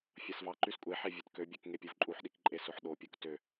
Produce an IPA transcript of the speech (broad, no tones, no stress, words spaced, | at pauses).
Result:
fʲɑsvɑǃys kʷʼeħe vʲøtkøbʲøk ŋepʲovǃʼuħɗik ǃʼesoħɗopʲok tø